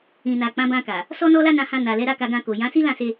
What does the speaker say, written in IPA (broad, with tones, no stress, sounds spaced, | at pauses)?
ĩ˨ n a˨ k͡p ã˨˦ b ã˧ k a˨ | s ɔ˦ n ɔ˦ l a˦ n ã˧ h ã˧ n a˨ l ɛ˨˦ ɾ a˦ k a˧ ɡ ã˧ k o˨ j ã˨˦ s i˦ l ã˦˨ s e˧